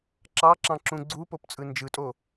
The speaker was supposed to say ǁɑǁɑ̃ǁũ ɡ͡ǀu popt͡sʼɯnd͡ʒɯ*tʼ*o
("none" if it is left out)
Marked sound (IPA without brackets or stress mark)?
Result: tʼ